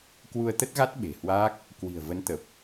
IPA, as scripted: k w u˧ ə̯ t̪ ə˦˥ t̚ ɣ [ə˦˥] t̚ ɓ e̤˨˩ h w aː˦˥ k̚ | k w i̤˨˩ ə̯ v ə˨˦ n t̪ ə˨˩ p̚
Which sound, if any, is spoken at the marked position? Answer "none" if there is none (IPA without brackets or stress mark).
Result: a˦˥